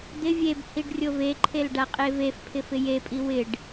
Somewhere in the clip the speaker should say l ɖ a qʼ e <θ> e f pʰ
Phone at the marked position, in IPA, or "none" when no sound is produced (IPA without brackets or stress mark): v